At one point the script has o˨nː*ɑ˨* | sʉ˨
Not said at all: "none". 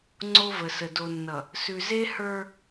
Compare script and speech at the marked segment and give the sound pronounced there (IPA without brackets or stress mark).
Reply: ʌ˨